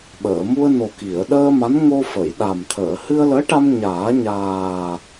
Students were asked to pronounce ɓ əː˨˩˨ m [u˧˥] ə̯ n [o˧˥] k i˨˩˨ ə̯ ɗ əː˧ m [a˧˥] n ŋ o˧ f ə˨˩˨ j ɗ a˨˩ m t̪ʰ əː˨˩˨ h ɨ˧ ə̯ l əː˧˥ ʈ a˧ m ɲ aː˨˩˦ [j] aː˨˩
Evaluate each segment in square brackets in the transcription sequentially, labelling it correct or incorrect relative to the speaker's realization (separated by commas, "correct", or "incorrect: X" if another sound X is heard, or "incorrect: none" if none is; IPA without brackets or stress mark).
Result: incorrect: u˧, incorrect: o˨˩, correct, incorrect: ɲ